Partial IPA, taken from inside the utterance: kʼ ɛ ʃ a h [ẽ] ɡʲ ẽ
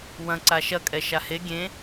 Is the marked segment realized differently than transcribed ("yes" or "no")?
yes